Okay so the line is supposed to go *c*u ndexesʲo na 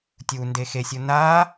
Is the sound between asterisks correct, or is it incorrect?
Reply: incorrect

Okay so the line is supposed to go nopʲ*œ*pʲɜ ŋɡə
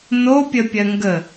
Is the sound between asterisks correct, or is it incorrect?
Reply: incorrect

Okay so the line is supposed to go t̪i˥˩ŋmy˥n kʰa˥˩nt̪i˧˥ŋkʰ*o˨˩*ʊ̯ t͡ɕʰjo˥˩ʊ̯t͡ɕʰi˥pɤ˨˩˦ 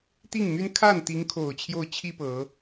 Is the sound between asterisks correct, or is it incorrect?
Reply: correct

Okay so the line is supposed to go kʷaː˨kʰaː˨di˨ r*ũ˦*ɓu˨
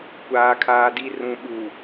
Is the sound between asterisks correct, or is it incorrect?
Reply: incorrect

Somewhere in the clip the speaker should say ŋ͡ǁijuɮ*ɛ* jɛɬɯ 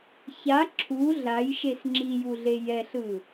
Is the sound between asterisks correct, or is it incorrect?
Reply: incorrect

